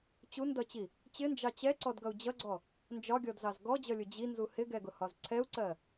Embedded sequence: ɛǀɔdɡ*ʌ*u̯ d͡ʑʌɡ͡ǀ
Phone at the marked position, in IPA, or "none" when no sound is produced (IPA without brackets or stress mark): ʌ